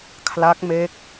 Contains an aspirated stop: yes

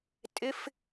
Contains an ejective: yes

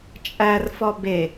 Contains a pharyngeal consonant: no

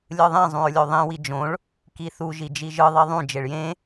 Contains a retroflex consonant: yes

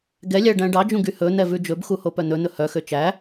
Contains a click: no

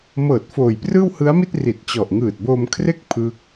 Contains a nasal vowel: no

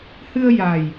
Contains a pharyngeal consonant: no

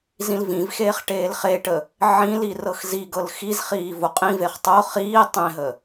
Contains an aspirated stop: no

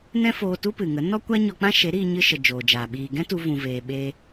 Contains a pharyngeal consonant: no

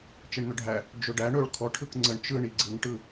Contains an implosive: no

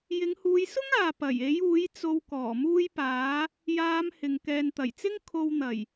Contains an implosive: no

